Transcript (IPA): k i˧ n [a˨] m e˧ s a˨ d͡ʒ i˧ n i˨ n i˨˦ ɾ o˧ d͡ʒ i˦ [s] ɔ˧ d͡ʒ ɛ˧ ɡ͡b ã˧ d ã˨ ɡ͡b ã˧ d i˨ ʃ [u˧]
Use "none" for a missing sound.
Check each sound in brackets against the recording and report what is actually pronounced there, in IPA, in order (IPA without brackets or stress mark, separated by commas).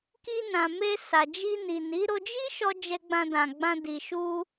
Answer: ã˨, ʃ, u˧